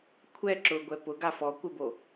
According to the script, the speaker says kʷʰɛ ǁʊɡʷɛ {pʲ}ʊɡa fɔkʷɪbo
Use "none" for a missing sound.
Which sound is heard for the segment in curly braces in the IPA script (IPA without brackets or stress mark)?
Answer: p